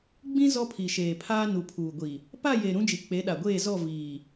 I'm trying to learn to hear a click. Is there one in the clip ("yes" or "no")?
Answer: no